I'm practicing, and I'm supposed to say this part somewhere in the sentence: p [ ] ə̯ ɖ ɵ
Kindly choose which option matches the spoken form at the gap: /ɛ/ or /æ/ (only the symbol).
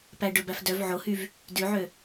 æ